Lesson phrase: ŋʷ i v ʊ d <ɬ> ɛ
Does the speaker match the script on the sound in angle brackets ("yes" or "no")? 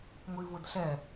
yes